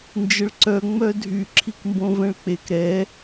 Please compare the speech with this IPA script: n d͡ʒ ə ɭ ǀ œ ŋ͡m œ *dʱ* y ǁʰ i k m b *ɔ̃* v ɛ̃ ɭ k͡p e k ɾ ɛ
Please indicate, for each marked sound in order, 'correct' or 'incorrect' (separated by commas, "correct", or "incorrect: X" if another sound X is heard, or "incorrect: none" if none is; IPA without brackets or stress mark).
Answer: correct, incorrect: õ